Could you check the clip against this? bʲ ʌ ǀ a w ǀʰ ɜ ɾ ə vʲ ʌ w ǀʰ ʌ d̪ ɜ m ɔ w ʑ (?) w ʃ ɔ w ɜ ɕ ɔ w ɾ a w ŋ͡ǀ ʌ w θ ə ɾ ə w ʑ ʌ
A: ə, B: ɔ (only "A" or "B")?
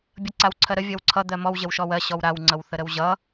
A